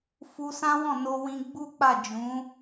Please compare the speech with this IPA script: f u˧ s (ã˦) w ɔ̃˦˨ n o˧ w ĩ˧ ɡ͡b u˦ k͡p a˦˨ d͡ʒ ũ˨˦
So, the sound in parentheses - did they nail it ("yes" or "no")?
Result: yes